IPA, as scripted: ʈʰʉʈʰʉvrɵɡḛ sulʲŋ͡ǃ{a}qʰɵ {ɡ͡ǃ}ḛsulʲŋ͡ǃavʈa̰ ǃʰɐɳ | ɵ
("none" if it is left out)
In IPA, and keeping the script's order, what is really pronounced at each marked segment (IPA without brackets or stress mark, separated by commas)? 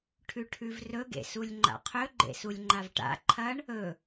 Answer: a̰, ɡ͡ǃ